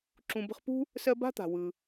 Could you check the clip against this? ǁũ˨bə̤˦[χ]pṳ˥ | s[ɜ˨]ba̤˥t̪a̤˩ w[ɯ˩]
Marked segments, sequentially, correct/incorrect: correct, incorrect: ɜ˦, correct

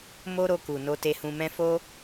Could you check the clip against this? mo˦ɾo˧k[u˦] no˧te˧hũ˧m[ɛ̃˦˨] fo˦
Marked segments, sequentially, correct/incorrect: incorrect: u˨, incorrect: ɛ̃˦

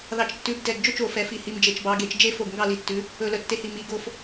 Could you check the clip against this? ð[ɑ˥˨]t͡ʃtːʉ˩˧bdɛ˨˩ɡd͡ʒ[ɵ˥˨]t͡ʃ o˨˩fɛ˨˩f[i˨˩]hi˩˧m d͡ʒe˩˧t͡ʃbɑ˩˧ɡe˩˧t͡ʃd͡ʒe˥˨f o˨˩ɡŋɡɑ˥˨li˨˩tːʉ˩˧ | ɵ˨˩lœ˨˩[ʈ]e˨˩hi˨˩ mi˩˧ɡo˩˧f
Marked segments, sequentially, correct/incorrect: incorrect: ɑ˨˩, correct, correct, incorrect: tː

